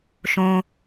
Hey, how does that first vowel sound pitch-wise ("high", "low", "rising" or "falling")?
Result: low